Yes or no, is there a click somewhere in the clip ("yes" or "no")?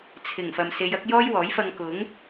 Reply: no